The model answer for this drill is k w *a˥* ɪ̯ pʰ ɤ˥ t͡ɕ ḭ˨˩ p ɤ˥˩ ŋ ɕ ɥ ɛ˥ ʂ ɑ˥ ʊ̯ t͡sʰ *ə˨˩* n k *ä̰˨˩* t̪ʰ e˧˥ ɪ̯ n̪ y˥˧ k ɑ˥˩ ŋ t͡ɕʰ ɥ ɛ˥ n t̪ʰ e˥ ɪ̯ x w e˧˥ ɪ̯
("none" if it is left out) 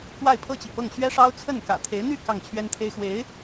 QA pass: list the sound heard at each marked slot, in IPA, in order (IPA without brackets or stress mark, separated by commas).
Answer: a˥˩, ə˥˩, ä̰˨˩